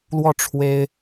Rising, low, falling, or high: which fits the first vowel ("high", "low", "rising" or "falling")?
falling